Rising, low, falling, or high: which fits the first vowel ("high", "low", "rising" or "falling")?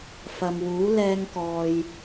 low